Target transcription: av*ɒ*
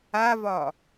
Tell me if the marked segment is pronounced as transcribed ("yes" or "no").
yes